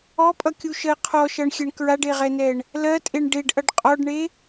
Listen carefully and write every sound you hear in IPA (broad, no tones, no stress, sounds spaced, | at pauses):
ɔ pʼ ʌ kʲ u ʃ ɜ qʰ ɔ ʃ ʌ ɳ xʲ ɛ ɳ k ɹ a ɖ e ʁ ɛ n ɛ ɳ | l ɜ tʼ e ɳ ɖ e ɖ ʔ ʌ ɖ qʼ ɔ ɖ ɳ e